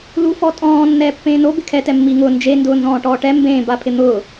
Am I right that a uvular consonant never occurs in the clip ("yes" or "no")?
yes